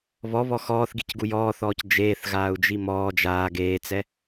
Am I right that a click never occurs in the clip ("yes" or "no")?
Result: yes